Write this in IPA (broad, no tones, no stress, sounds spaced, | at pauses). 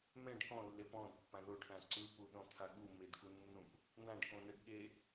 m ɛ̃ ɖ k ɔ̃ lː e p ɔ̃ d pː ã ð o ɖ θ ã ǀ ɯ p u ɗ ɔ̃ t̪ʰ a ɠ u m e d k u nː ũ p | n̪ ã ɖ k õ n ɛ ɖ ɠ e